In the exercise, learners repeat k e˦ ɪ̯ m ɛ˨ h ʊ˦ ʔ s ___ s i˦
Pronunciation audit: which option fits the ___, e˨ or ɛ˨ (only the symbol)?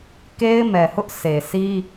e˨